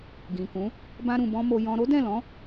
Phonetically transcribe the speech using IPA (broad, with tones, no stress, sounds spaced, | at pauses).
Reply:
ɡ ĩ˨ k ũ˨˦ | b ã˧ ɾ ũ˨ b ɔ̃˧ m o˧ j ɔ̃˧ ɾ o˦ d ɛ̃˦˨ l ɔ̃˨˦